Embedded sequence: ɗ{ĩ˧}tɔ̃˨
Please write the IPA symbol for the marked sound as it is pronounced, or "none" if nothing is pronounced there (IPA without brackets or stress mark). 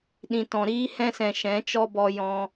ĩ˨